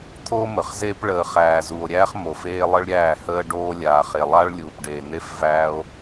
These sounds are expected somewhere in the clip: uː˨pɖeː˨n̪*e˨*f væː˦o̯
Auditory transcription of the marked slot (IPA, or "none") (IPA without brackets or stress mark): e˦